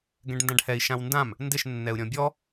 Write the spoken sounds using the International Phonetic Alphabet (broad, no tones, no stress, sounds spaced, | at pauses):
ɡ ɛ̃ ɖ n d ã ɖ h ɛ i̯ ʃ ã w n d ã m | n d ɪ ʃ nː ɛ u̯ ɾʲ ɔ̃ bʲ ɔ